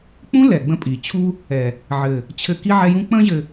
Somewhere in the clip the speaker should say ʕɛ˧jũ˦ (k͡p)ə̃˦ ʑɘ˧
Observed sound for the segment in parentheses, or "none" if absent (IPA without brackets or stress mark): k͡p